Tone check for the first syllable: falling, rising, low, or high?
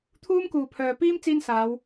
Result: high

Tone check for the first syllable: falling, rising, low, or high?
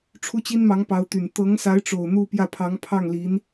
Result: high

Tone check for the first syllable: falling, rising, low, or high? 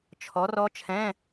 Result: rising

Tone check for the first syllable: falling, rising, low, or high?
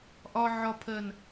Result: low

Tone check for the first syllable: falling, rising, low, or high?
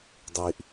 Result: low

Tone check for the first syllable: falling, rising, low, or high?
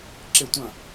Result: falling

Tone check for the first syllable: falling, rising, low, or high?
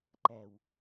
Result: low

